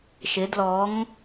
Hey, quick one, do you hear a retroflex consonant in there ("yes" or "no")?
no